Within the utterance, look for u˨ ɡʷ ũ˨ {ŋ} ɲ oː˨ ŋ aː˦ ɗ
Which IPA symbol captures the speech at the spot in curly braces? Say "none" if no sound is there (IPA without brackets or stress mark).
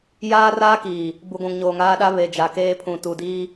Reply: ŋ